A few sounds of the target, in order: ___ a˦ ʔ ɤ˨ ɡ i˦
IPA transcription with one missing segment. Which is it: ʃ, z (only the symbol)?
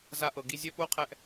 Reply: z